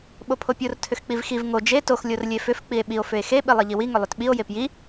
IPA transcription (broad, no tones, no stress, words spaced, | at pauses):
ɓopʰopʲor tʰʏxk͡pivxiv ŋo d͡ʒe tox lʲorlʲefʏf k͡pie̯ɓio̯ fʏe̯xe ɓilˠiʎiwi ŋʏlˠʏtɓio̯ jepji